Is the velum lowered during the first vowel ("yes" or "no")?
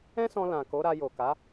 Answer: yes